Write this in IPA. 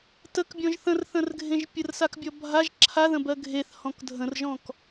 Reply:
t ə k bʲ ɔ̃ ʒ θ ə̃ r θ ə̃ r ɡʱ ẽ ʒ pʲ ə r s a k bʲ ɔ bʱ a ʒ ǁʰ a ð ə̃ b ɜ ɡʱ e θ h ɔ̃ k dʱ ə̃ r ʒ ɔ̃ k

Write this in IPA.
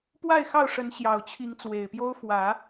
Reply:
p w a˥˨ ɪ̯ x ɑ˥˨ ʊ̯ ʂ ə˨˦ n ɕ j ɑ˨˩ ʊ̯ t͡ɕʰ i˨˦ ŋ t͡s w e˨˩ ɪ̯ p j o˦ ʊ̯ f w ä˨˦

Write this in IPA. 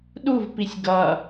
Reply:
ɗ u v p i sʲ ɡ ʌ

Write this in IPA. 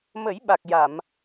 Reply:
m ə˨˩˦ j ɓ a˨˩ k̚ j a˨˩˨ m

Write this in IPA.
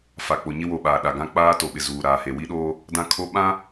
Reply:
f a˨ k͡p o˨ ɲ ɪ˦ w o˨ ɓ aː˨ ɗ a˨ ɡ ã˦ k͡p aː˦ t o˨ ɓ ɪ˨ z uː˨ ɾ aː˨ h e˨ w i˦ ɗ oː˦ | d ã˦ kʰ o˦ ɓ ã˦

